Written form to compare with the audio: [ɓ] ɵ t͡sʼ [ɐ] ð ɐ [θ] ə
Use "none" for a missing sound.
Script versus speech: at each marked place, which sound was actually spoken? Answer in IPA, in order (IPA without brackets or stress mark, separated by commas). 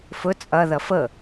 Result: f, ɐ, f